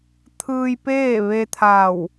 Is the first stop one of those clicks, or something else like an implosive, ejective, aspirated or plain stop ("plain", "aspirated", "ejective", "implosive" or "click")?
aspirated